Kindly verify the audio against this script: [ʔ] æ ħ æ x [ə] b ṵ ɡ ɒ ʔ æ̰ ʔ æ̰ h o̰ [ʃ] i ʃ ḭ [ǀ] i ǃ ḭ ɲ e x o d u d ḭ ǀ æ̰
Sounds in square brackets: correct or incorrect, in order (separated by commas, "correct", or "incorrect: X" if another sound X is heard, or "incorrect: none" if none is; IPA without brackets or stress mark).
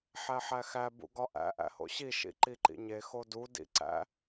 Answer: incorrect: ħ, incorrect: æ, incorrect: ɕ, incorrect: ǃ